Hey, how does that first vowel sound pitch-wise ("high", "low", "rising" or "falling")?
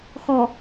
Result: low